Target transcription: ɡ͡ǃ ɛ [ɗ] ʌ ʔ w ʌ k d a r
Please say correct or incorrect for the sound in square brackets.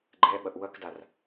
incorrect